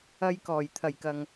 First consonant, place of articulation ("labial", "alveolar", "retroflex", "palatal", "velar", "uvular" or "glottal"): palatal